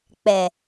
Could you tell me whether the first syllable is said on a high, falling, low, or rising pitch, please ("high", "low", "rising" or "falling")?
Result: low